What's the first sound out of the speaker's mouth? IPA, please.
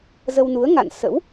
z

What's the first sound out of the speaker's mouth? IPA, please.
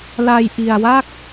l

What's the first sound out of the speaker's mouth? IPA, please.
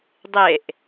dˤ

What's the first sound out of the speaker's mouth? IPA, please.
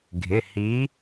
ɡʱ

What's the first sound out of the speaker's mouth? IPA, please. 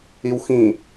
i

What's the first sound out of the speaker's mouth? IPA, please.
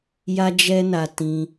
j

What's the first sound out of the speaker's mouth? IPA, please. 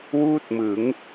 w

